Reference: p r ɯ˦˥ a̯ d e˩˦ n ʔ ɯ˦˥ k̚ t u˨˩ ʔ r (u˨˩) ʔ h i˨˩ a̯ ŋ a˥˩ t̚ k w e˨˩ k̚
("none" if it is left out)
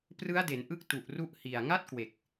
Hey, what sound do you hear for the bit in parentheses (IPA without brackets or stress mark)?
u˦˥